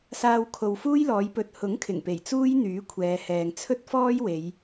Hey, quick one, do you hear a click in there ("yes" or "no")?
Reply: no